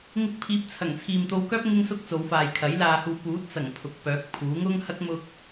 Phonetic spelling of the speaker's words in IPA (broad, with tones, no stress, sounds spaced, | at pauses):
ŋ ɪ˧ k̚ pʰ iː˨˥ p̚ t͡sʰ ɐ˨˩ ŋ t͡sʰ iː˨ m t̪ o˧ w k œː˥ p̚ ŋ ɪ˧ ŋ s ʊ˧ k̚ t͡s o˨˧ w f aː˨ j kʰ ɐ˨˥ j l aː˨ h uː˨ p uː˨˥ t̚ t͡s ɐ˨˩ ŋ pʰ ʊ˨ k̚ p œː˨˥ k̚ pʰ uː˨˥ ŋ ʊ˥ ŋ h ɐ˥ k̚ m ʊ˧ k̚